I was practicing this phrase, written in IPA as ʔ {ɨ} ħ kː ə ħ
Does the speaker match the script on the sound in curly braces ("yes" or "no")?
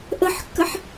no